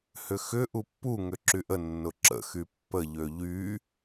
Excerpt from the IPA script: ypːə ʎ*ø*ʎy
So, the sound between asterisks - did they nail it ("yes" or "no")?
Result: yes